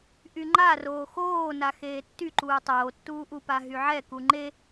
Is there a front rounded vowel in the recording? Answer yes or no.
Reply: yes